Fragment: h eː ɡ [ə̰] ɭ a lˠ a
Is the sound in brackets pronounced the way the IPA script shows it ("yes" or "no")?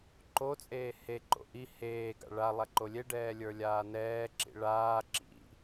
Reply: no